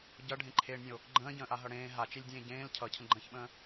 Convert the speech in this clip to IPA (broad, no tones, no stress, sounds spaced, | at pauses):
ɟ ʌ ɖʱ ẽ ǃʰ eː ɳ nʲ ə̃ o̯ | ɡ͡ǃ ə̃ː ɟ ə̃ː ʔ a ɦ ʌ ɽ ẽː ɦ a t͡ʃ e lʲ dʲ ẽː ɟ ẽː l cʰ ʌ cʰ ə̃ ɡ͡ǃ ə̃ː ç ɓ ə̃ː